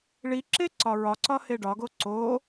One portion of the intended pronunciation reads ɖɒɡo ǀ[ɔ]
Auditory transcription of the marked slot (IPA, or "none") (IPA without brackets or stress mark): o